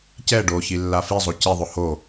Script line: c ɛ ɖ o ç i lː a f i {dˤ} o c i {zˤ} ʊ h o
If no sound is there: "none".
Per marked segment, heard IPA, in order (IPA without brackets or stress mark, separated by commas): zˤ, ðˤ